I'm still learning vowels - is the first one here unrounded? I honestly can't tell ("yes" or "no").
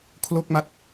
no